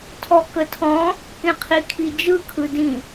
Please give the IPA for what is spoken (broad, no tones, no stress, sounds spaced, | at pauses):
tʰ ɔ k ə tʰ ɔ̃ | k ẽ qʰ i kʰ i d͡ʒ ɯ kʰ ɯ d ĩ